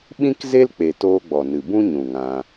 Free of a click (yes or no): yes